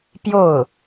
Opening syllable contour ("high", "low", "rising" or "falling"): falling